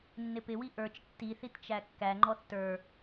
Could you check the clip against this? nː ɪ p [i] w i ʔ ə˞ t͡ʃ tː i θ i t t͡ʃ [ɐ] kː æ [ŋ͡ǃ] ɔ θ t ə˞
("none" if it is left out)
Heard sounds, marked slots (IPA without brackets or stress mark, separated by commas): ɪ, æ, ŋ͡ǃ